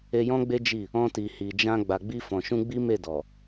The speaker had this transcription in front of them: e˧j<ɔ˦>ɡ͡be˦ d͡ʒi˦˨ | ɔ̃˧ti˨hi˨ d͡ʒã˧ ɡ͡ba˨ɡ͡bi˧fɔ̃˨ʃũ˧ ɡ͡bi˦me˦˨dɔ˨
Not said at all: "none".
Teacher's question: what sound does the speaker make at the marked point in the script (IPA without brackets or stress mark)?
ɔ̃˦